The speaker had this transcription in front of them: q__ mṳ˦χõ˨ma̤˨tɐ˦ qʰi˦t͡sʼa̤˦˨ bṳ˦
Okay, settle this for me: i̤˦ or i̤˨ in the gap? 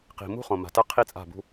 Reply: i̤˨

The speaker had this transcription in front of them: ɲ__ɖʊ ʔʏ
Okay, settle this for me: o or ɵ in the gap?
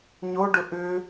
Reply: o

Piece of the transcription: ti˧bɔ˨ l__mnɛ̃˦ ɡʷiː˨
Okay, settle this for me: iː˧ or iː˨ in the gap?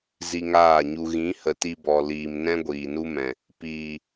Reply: iː˨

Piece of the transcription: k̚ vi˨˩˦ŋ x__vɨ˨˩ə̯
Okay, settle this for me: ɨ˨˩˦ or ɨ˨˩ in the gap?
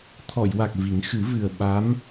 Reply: ɨ˨˩˦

